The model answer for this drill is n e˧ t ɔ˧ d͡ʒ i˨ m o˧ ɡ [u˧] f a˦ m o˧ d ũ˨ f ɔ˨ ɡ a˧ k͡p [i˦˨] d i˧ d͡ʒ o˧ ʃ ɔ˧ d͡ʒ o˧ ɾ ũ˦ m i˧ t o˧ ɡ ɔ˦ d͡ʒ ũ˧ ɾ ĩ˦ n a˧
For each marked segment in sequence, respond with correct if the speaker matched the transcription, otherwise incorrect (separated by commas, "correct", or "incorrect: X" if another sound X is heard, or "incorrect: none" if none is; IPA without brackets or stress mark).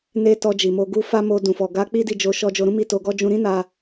correct, incorrect: i˦